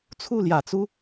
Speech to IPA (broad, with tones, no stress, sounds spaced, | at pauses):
t͡sʰ u˥˩ l j ä˨˩ t͡s u˥